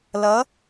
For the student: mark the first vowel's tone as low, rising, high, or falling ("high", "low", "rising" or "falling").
rising